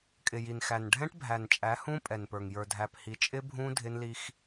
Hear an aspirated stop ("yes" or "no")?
no